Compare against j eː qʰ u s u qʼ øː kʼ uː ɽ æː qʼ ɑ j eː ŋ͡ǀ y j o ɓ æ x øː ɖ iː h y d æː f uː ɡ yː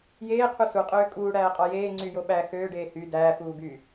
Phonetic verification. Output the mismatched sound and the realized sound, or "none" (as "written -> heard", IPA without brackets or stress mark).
iː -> eː